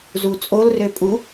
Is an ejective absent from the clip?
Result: no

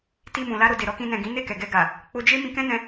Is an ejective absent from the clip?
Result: yes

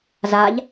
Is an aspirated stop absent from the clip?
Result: yes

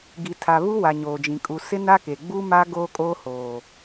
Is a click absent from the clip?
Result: yes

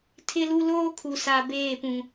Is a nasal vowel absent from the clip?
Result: no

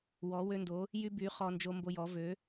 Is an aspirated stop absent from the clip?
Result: yes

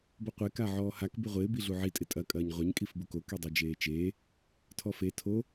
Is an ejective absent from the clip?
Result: no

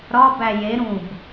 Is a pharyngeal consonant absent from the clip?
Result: yes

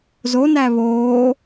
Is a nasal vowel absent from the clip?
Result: yes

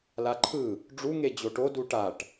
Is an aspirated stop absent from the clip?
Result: no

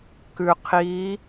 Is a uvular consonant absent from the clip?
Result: no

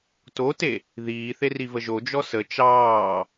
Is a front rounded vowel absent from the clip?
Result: yes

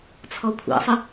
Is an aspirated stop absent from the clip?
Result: no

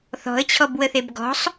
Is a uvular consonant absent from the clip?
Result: yes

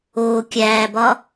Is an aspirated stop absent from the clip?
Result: yes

